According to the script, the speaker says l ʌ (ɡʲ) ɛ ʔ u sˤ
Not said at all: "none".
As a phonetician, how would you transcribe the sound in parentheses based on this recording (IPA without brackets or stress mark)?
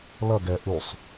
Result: ɡ